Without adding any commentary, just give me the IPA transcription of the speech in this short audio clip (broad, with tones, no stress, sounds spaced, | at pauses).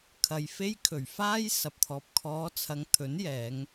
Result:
kʰ ɐ˨ j f e˧ j kʰ ɵ˨˩ ɥ f aː˥ j s ɐ˨ p̚ t̪ʰ ɔː˨ p̚ kʰ ɔː˨˧ t͡sʰ ɐ˨˧ ŋ t̪ʰ ɵ˨˥ n j ɛː˨˧ ŋ